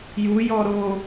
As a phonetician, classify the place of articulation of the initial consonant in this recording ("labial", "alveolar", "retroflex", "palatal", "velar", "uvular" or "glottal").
palatal